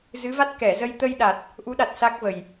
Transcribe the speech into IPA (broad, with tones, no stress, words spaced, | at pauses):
zɨ˨˦va˦˥t̚ kɛ˧˩zə˧j t̪ə˧j ɗa˨˩t̚ | ʔu˨˦ɗa˨˩t̚ sa˦˥k̚və˨˩j